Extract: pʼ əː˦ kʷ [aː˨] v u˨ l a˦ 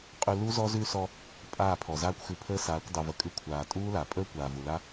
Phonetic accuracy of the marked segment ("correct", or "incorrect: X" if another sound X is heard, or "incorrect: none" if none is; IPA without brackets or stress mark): correct